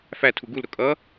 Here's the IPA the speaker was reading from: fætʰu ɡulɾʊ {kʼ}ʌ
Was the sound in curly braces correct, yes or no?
yes